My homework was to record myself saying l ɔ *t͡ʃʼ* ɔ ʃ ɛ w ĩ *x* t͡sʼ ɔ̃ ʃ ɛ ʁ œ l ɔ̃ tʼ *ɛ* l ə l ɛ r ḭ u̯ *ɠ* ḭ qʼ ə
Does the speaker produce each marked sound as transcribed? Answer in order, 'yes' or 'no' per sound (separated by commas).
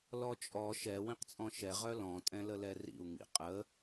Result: yes, no, no, no